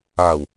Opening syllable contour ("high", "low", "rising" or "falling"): low